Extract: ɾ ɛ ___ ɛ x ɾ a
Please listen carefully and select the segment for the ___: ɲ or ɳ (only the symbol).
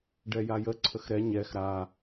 ɲ